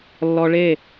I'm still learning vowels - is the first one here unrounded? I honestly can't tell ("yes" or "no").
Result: no